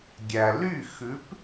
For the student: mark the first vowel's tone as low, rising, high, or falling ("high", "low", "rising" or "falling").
low